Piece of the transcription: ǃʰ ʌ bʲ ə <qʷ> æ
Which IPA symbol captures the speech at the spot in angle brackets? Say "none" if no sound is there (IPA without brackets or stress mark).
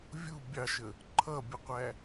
qʷ